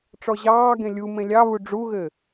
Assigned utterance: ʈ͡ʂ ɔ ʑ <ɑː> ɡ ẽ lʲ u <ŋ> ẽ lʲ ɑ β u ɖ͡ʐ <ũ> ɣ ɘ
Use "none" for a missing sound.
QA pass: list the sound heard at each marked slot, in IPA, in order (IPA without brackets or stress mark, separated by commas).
ɑː, m, u